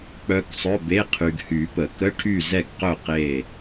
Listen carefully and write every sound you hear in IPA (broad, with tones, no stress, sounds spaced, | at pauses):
k͡p œ˨ k sˤ œ˧˥˧ b e˧˥˧ qʰ y˨ ɡ h y˨˩˦ p ə˨˩˦ k ə˧˥˧ ʈʰ y˥˨ z ɛ˥˨ ɡ q œ˥˨ q e˥˨